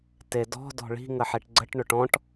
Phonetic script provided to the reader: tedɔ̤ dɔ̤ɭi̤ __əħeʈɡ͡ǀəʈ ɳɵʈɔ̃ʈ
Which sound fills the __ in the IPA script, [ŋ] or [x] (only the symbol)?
ŋ